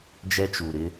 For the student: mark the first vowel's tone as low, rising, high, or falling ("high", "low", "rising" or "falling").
high